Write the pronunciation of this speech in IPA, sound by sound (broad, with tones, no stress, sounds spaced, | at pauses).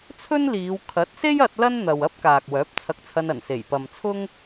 t͡sʰ ɵ˥ n l iː˨˧ w kʰ ɐ˨˥ t̚ s e˥ j ɐ˧ t̚ l ɐ˥ n n̪ ɐ˨ w ɐ˥ p̚ k aː˨ k̚ w œː˨˥ p̚ t͡sʰ ɐ˧ k̚ t͡sʰ ɐ˧ n ɐ˨˩ n s e˨˩ j p ɐ˨ m t͡sʰ ʊ˥ ŋ